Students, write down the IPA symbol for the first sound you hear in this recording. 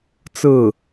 t͡s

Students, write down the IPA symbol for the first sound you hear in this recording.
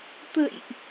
t̪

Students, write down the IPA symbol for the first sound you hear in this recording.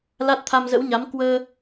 l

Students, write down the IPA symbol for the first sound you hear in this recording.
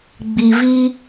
ɡ͡b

